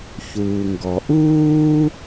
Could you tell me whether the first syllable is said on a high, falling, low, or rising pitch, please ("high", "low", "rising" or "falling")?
low